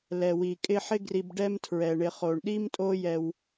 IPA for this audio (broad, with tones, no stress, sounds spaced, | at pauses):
l ɛ˩ w i˩ kʼ ɪ˦ ħ ɪ˦ ɡ r i˨ b ɖ ɛ˦ m tʰ ɹ ɛ˩ ɳ ɪ˨ χ o˩ ɳ ɗ i˥ m tʼ o˦ j ɛ˨ w